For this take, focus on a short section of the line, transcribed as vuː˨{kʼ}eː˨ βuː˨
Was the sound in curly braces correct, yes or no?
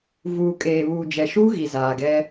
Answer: yes